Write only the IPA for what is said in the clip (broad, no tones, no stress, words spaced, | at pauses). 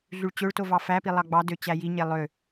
ɮyɭt͡ɕøɭto vɑfæpi lˠɑɡ͡bɑdø t͡ɕæjiɲe lˠø